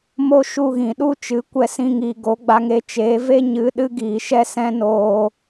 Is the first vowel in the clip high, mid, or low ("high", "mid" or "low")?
mid